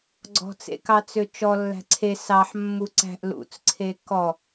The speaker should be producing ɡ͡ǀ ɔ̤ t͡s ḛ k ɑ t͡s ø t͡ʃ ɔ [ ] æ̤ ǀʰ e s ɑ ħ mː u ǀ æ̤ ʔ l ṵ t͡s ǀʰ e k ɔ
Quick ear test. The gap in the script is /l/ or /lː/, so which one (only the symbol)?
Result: lː